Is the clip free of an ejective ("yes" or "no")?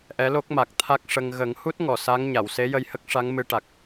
yes